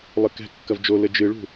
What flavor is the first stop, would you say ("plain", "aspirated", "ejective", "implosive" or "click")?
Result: plain